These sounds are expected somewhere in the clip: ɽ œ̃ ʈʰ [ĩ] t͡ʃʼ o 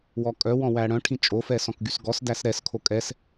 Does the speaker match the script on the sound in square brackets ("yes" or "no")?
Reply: yes